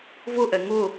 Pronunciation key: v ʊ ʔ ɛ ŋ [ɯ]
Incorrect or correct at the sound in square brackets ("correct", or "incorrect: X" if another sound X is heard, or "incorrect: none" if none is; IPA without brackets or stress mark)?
incorrect: ʊ